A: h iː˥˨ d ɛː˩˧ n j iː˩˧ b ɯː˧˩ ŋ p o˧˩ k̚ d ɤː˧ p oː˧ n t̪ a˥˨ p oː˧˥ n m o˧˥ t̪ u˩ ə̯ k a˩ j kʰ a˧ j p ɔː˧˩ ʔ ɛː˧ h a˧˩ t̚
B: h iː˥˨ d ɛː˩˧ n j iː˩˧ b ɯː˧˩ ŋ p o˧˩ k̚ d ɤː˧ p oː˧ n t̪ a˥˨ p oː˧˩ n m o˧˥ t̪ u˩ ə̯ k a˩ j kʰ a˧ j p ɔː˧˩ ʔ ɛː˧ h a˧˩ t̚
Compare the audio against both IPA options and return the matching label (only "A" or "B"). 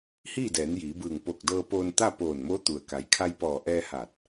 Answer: B